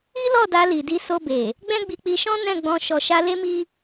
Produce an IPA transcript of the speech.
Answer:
i˦ l ɔ˦˨ d a˧ l i˨ d i˧ s o˧ b e˨ | ɡ͡b ɛ̃˦ ɡ͡b i˧ k͡p i˧ ʃ ɔ̃˦ n ɛ̃˦˨ ɡ͡b ɔ̃˧ ʃ ɔ˨ ʃ a˧ l e˦ m i˦

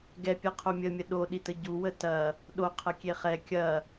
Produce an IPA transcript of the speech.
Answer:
ɡ ɛ pʲ ɐ qʰ o mʲ ə mʲ ə ɗ o ɗ i t ə ɟ u w ə t ɐ | ɗ o qʰ ɐ kʲ e χ ɛ kʲ ɐ

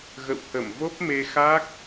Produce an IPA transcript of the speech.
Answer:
ɣ ə̰˧˨ w h ə˧˩ m v o˦˥ p̚ m e˧ x a˦˥ k̚

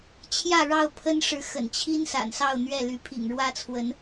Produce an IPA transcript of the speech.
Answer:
t͡ɕʰ j ä˥˨ ɻ ɑ˥˨ ʊ̯ pʰ ə˦ n ʂ ɻ̩˨ x ə̰˨˩ n t͡ɕʰ i˦ n s a̰˨˩ n s ɑ˥˨ ʊ̯ n̪ ɥ ɛ˥˨ l y˨˦ pʰ ḭ˨˩ ŋ ɻ w ä˦ t͡sʰ w ə˨˦ n

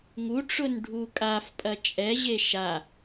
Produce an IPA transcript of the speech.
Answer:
ŋ u ʈ͡ʂ ʊ n ɖʱ u kʼ a f pʼ ɐ t͡ʃʼ ɛ ʑ e ʃ a

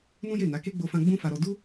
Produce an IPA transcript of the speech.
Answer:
n ũ˦ j e˦˨ n a˨˦ k e˦ ɡ͡b o˧ f ã˧ ɡ͡b ũ˦ f a˧ ɾ ɔ˧ d u˦

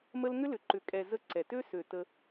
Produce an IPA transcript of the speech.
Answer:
m ə˦ l ŋ ʏ˦ l ʏ˨ ǃ ʏ˨ kʼ ɛ˨ z ə˦ ǀ ɛ˨ t ø˦ s ø˨ t ə˦

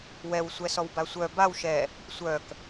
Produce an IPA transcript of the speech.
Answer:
w ɛ w sʷ ɛ s ɔ w b a sʷ œ b a w ʃ ɛ | sʷ œ k

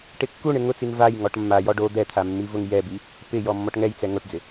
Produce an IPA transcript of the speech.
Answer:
ʈ ɪ kː u ɳ ɪ ŋ ʊ t͡s i ŋ v a j ŋ ɔ ʈ mː a j ɔ ɖ o d̪ ɛ t̪ʰ a mː i v ʊ ŋ j ɛ b i | p ɪ j ɔ mː ɔ ʈ ŋ ɛ j t͡s ɛ ŋ o ʈ d͡z ɪ

